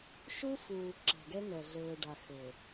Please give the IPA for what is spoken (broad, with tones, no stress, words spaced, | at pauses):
ʃu˦fuː˨ ǁɛ̤˨ɡɛ˦ŋɛ˨ ɮɘː˨ɖa˨xɘ˨